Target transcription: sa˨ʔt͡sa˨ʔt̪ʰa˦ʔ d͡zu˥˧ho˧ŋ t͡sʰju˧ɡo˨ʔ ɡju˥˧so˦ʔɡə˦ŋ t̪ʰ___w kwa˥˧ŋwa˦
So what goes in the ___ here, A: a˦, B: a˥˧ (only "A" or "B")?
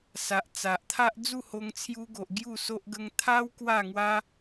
A